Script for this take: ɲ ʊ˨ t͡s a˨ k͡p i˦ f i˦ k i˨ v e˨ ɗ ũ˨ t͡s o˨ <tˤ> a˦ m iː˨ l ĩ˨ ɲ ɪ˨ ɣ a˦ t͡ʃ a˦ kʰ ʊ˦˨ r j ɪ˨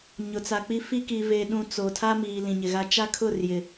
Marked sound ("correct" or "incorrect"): incorrect